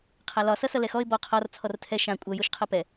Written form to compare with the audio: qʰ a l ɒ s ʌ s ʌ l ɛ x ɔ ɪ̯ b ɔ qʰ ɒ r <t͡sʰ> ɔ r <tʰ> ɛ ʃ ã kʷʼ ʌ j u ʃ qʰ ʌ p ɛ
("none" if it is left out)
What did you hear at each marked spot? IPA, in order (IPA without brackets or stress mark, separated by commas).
t͡sʰ, tʰ